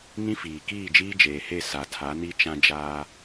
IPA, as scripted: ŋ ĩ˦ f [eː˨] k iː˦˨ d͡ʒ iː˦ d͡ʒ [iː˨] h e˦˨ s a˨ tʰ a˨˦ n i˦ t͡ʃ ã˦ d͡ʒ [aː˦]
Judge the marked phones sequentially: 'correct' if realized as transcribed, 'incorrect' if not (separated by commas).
incorrect, incorrect, correct